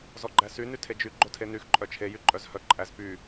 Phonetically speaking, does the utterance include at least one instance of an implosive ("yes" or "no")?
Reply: no